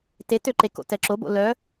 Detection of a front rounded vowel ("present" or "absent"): present